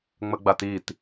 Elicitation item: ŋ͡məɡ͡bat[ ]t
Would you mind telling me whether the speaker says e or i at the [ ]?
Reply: i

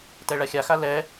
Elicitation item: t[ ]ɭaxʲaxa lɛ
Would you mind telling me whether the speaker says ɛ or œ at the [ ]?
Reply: ɛ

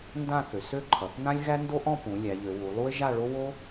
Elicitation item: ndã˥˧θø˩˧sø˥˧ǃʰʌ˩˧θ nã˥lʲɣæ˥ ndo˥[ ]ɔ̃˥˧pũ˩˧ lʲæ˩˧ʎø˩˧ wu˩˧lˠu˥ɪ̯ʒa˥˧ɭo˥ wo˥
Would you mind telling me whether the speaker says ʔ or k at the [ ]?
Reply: ʔ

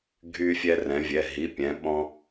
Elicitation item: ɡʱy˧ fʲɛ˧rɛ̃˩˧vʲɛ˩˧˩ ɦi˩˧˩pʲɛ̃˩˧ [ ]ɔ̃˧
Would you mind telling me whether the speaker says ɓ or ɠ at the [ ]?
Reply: ɓ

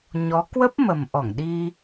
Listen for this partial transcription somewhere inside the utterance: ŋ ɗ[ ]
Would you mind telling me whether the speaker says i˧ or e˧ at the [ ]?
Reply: i˧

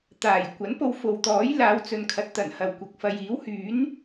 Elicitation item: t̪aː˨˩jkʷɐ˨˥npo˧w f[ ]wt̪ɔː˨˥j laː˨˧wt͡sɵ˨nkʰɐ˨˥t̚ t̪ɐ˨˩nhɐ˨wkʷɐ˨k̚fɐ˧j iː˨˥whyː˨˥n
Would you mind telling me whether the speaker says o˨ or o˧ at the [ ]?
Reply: o˨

